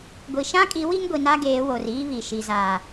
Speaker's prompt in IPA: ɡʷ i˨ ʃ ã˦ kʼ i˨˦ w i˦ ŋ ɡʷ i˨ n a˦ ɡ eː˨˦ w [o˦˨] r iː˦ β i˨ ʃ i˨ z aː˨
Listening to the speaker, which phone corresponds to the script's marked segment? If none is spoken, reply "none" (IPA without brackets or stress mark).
o˨